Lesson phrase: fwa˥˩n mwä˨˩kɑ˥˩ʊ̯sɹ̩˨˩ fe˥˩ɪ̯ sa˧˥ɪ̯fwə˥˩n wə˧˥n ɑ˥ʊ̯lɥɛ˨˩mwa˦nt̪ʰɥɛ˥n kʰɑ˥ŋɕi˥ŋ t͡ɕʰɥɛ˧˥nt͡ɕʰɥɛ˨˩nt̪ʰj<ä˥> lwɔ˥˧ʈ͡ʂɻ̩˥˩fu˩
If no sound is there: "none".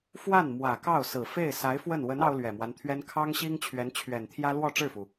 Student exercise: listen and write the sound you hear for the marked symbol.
ä˥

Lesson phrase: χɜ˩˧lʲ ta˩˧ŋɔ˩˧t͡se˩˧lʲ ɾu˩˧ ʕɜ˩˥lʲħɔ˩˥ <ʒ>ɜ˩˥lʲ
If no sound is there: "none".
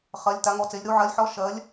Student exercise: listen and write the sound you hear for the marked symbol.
ʃ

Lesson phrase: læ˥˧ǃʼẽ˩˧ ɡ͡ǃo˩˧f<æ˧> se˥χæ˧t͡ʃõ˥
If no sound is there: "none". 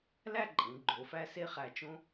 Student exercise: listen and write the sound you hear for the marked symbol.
æ˥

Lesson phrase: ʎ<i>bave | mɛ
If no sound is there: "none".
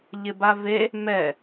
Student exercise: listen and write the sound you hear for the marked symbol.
ɪ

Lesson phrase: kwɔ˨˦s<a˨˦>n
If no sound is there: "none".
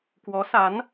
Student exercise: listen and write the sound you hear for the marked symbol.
a˨˦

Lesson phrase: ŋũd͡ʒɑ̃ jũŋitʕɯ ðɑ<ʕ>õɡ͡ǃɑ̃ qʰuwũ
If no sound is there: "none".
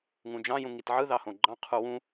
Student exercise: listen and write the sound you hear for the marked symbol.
h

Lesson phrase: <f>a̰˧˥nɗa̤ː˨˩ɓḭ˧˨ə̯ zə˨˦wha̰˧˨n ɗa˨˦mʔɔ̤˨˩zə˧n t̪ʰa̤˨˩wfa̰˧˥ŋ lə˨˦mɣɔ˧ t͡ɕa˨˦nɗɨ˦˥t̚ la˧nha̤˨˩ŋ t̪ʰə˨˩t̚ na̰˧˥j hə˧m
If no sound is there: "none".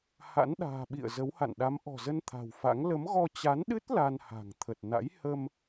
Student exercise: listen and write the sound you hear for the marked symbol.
h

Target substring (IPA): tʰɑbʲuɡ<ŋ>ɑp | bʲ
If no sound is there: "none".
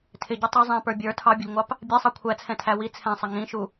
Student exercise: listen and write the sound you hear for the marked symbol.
ŋʷ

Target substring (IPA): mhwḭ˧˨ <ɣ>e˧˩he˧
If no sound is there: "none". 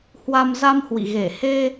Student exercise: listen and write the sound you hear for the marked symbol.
ɣ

